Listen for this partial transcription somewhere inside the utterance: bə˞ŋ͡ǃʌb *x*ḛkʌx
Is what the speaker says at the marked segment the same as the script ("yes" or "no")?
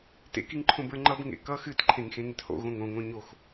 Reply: no